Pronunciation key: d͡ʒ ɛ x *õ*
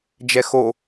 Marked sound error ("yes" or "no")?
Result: yes